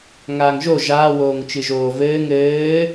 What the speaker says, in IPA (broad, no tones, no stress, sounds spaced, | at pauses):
ŋ aː ŋ ʒ o ʒ aː w oː ŋ t͡ʃ ɨ ʒ oː v ɘː ŋ ɘː